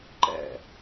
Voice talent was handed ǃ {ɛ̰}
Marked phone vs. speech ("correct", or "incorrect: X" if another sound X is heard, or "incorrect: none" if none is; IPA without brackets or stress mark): correct